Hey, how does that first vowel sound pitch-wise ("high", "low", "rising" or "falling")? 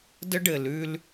high